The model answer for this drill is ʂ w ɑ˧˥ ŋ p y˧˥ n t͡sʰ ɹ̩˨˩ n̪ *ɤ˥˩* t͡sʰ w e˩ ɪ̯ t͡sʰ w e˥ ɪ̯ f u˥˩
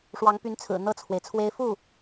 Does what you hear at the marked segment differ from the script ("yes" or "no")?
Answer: no